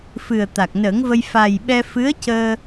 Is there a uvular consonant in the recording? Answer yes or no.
no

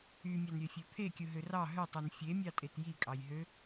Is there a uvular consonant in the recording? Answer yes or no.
no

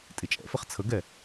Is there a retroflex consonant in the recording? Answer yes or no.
no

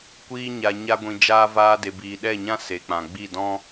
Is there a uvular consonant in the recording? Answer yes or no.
no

